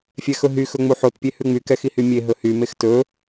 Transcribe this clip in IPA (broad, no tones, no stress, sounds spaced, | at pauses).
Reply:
fʲ ɛ x ɵ ɦ y x ɵ ŋ͡m u ħ o t pʲ e h ʉ ŋ͡m y k ɛ x i h y mʲ e ɦ ɵ h y m e x t ɵ